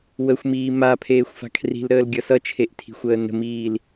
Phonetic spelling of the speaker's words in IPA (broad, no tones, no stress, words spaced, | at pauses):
wəxʷmiː mapʰeːxʷfa̤ kʰri̤lɾəːlɡʲʌ sʌt͡ʃʰeʔtʰi̤xʷəː nə̤miːl